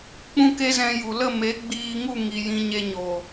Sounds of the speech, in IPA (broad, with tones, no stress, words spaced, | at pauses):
k͡pũ˦ke˦zɛ̃˧ ju˨lə˦˨ me˨˦ ɡ͡biː˧ŋu˦˨ ŋi˨jĩ˨ ɲe˨ ɲo˨